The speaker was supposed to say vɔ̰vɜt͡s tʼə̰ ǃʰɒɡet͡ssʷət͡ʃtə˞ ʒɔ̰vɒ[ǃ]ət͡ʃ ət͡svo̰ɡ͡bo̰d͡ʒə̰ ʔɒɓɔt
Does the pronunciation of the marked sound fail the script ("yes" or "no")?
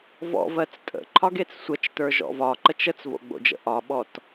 no